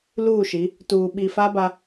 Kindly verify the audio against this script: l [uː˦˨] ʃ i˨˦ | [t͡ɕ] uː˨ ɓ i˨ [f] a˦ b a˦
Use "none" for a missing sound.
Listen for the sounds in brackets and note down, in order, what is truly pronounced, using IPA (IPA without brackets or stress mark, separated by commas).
uː˦˨, t, f